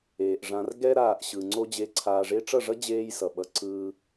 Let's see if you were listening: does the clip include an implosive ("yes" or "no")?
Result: yes